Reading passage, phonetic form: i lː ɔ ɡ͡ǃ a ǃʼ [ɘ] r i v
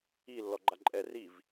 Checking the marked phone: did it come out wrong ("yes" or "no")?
yes